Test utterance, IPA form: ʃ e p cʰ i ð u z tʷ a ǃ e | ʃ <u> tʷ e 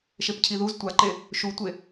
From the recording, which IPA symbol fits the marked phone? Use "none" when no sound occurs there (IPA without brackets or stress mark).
u